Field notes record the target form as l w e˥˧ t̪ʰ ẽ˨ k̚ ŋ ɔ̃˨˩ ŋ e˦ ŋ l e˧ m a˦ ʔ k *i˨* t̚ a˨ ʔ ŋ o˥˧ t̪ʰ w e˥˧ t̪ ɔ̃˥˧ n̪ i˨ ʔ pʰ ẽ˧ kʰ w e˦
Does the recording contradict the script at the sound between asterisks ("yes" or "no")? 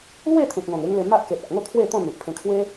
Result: yes